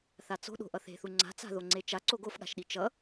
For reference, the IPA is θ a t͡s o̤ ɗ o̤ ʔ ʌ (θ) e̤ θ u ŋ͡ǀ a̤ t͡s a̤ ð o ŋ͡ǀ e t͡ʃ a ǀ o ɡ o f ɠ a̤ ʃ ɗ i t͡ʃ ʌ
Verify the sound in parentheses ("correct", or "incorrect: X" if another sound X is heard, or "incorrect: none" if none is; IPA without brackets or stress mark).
correct